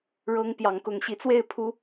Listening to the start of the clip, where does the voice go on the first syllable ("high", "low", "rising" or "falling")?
high